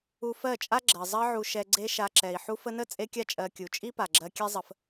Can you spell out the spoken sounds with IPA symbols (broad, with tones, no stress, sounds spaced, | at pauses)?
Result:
u˧ f ɜ˦˨ t͡ʃʼ a˦ ɡ͡ǁ ɜ˨ zˤ ɜ˧ ʕ u˨ ʃ ɛ˧ ɡ͡ǀ e˦ ʃ a˧ ǁ ɛ˨ i̯ ħ u˧ f ə˧ n ə˦˨ t͡sʼ e˦ kʲ a˦ t͡ʃʼ ɜ˧ kʲ u˨ t͡ʃʼ i˦ p a˨ ɡ͡ǁ ɜ˧ kʲ ɛ˦ zˤ ə˧ f